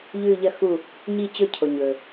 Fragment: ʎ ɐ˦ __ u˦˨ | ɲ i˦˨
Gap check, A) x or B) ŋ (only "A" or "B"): A